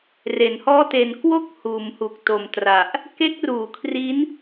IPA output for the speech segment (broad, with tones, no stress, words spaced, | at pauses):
re˩˦nhɔː˥˩te˧n kwo˦˥k̚ huː˩˦mhu˨˩k̚ to˨˩mtra˨˩ʔ | ke˦˥k̚ruː˩˦kʰri˦˥n